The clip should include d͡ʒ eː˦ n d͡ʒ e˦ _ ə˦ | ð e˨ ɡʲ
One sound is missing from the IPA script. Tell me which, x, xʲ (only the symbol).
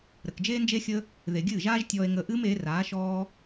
xʲ